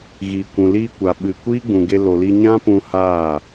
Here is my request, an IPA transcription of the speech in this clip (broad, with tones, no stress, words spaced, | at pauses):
ɣiː˨kʷũ˨liː˧ kʷa˨ɓɨ˨ kʷiː˦ɡ͡bũ˨ɡe˧ lo˨li˧ ɲã˦pũ˧ haː˦˨